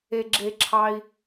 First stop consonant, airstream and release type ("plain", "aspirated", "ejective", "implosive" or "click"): click